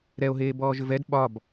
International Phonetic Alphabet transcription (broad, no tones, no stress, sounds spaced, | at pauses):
ɾ ɛ o̯ ɦ eː b ɔː ʒ ʏ v ɛ d ɓ ɒ b